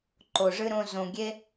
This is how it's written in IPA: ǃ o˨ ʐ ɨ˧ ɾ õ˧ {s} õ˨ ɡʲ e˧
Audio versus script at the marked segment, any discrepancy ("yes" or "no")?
yes